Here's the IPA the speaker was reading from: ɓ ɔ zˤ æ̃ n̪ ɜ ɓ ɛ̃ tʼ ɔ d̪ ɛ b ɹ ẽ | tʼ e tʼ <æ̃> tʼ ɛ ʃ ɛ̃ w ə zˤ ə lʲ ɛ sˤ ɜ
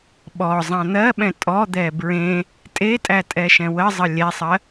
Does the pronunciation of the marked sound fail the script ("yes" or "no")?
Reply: yes